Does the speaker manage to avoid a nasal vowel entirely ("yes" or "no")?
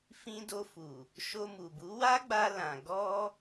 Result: no